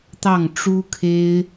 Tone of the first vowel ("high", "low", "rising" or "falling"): falling